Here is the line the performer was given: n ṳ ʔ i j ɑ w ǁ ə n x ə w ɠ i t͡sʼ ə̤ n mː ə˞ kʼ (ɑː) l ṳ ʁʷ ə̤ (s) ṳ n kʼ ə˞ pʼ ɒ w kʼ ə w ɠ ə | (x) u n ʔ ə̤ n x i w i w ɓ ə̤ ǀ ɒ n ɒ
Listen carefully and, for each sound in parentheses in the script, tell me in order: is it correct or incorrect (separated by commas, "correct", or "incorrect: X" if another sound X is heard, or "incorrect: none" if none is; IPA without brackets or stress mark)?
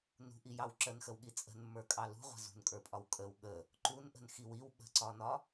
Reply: incorrect: ɑ, incorrect: z, incorrect: ǃ